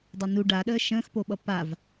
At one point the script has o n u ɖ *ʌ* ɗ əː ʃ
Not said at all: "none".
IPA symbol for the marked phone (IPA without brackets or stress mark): a